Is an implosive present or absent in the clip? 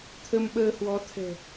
present